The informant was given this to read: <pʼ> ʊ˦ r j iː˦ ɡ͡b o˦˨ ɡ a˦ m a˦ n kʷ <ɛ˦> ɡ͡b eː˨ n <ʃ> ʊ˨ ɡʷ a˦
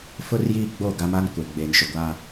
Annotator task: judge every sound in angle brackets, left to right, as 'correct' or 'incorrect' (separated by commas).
incorrect, incorrect, correct